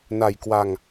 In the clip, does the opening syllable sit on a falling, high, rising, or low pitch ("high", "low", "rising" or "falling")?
low